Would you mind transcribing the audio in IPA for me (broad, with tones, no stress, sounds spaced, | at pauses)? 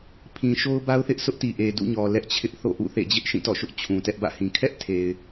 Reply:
pʰ ĩ˨ ʃ o˦ ʊ̯ b a˦ ʊ̯ θ ɪ˦ ʔ s ʊ˦ ʔ t i˨ ʔ e˨ d ṵ˦˨ ɲ ɔ˨ l ɛ˦ ʔ t͡ɕʰ ɪ˦ ʔ θ o̰˦˨ ʔ ṵ˦˨ θ ḛ˦˨ d͡ʑ ɪ˦ ʔ ʃ ĩ˦˨ t ɔ̰˦˨ ʃ ʊ˦ ʔ t͡ɕʰ ũ˨ t ɛ˦ ʔ b ä̰˦˨ h ĩ˨ kʰ ɛ˦ ʔ tʰ e˨ ɪ̯